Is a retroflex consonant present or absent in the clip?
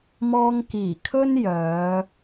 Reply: absent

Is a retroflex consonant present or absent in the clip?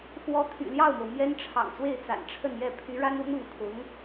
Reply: present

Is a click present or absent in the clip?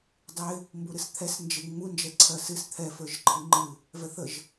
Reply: present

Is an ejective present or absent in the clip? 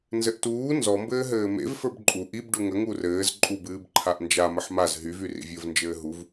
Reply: present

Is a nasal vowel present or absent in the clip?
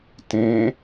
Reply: present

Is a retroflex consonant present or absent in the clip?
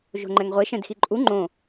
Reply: absent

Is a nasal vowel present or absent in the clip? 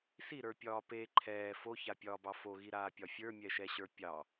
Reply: absent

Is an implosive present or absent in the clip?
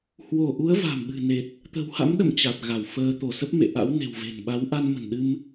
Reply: present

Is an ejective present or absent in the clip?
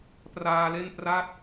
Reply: absent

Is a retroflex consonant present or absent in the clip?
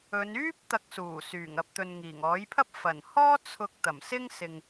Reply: absent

